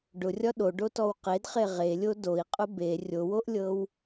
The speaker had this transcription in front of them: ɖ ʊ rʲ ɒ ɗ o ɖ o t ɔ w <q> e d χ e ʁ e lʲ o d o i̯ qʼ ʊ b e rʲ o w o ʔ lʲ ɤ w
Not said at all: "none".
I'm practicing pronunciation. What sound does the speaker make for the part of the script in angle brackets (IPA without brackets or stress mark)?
q